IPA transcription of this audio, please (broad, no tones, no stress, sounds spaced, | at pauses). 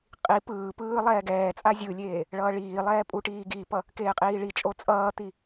qʼ i p ɯː p ɯː lˠ ɛː ɡ ɛː t͡sʼ a zʲ ɯ lʲ eː | ɭ ʌː ɭ iː lˠ ɛː pʼ u ʈ iː ɡ i p ʌ | k eː qʼ iː ɭ i t͡ʃʼ o t͡sʼ ʌː t̪ i